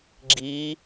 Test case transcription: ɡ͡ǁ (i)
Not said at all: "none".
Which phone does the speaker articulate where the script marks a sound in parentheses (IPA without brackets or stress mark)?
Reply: i